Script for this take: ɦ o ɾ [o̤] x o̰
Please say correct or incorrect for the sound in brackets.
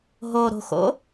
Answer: correct